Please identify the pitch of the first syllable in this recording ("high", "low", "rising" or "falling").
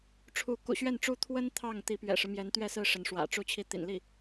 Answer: rising